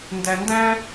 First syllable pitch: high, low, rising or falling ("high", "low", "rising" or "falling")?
low